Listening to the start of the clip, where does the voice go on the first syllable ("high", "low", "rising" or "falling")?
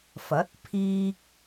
rising